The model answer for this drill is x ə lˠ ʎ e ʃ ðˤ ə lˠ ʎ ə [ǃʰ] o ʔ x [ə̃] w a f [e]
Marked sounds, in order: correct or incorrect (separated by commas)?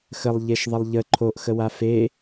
correct, incorrect, correct